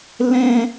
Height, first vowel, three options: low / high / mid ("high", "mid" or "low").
mid